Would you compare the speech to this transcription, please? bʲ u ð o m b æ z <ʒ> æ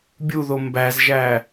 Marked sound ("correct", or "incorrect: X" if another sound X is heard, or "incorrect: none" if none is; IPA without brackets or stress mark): correct